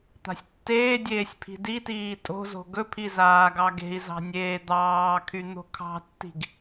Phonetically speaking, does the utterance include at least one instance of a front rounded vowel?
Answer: yes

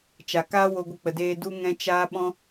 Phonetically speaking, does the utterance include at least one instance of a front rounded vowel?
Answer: no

